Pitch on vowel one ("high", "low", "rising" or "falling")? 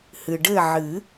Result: low